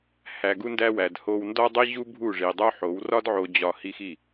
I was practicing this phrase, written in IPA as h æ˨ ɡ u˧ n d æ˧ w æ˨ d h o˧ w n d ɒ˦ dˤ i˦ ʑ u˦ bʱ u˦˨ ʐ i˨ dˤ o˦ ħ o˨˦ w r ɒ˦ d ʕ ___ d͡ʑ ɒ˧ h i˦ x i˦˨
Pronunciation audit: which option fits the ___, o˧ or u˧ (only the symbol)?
o˧